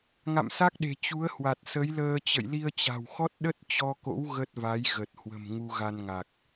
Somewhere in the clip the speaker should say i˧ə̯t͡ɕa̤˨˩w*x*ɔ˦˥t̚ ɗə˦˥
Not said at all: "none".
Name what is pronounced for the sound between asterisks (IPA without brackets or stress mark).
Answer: x